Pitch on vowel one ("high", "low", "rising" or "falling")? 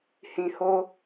low